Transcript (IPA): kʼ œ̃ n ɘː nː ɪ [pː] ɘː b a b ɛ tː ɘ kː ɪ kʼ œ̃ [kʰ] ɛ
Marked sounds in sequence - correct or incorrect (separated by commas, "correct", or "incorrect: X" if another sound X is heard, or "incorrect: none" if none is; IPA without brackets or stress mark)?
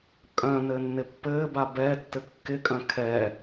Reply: correct, correct